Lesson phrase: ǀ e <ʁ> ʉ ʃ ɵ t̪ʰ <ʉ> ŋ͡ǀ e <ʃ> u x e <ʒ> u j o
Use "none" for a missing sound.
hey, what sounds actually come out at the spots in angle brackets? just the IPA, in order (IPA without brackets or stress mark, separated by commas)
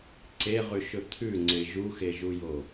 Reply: ʁ, ʉ, ʒ, ʒ